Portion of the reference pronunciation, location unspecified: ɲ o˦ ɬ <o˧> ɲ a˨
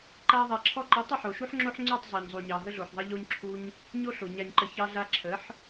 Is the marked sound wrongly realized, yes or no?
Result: yes